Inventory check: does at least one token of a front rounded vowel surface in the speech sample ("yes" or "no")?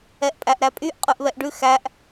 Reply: yes